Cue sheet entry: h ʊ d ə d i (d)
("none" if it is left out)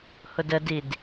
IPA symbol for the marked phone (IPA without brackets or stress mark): d